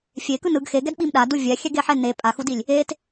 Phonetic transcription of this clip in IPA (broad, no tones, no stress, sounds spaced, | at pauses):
fʲ e k ɯ n ɯ ɡ x e ɡ ɛ d ɓ i m ɗ a d u vʲ ɛ xʲ ɛ ɡ e ħ ɛ n e pʼ a x u d i lʲ | e t